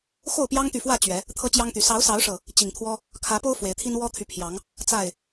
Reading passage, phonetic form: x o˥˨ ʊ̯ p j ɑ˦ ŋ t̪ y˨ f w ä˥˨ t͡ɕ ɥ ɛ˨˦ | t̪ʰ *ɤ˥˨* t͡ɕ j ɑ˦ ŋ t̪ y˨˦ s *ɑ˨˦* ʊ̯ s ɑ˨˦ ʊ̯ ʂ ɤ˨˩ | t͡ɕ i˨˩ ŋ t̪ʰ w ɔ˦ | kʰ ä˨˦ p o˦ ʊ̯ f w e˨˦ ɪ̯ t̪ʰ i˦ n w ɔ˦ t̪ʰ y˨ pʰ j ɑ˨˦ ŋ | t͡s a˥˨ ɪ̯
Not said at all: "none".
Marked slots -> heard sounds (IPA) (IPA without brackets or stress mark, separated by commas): ɤ˦, ɑ˨˦